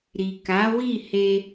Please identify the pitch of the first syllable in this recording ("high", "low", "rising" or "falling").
low